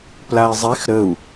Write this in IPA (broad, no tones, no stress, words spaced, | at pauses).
plai̯zˤex ɾəu̯